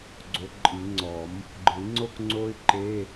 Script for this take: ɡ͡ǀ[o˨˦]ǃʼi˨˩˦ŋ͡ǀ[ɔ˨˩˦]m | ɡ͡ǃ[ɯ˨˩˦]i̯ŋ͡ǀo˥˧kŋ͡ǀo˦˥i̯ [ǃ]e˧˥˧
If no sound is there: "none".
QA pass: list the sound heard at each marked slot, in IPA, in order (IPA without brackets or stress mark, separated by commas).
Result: o˨˦, ɔ˨˩˦, ɯ˨˩˦, ǃ